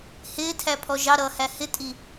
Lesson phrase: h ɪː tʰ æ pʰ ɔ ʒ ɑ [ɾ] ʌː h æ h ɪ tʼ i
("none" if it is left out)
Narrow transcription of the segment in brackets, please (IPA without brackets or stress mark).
ɾ